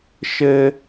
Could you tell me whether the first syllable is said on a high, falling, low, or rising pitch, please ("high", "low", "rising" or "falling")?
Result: high